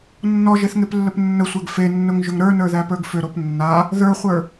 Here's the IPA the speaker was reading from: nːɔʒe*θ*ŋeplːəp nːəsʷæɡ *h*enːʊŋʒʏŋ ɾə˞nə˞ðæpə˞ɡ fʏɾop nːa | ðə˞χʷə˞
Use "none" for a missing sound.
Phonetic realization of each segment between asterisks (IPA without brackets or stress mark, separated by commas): θ, f